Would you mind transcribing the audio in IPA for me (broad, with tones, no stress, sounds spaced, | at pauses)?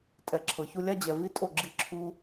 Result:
tʼ ɛ˨ ǁʰ ɤ˨ ç u˦ lʲ a˦ d͡ʑ ɛ˨ v i˦ tʼ o˦˨ ɡ͡ǁ i˦ ǁʰ u˦